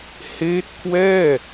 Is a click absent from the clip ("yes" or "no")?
yes